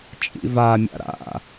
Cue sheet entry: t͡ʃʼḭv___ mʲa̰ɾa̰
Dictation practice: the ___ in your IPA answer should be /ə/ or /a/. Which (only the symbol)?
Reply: a